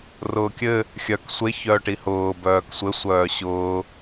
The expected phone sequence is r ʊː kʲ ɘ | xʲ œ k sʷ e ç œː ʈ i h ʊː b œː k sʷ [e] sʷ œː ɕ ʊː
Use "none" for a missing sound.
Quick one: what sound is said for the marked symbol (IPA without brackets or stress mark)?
ɘ